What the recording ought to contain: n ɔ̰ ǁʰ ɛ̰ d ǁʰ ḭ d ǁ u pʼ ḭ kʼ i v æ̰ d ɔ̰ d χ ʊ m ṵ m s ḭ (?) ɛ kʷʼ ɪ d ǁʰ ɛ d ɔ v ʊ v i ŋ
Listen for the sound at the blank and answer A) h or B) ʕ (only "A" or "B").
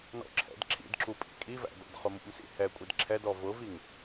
A